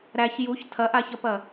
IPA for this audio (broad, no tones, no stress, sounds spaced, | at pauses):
ɾ æ ç j u ç tʰ ɐ ʔ a ç ɐ p ɐ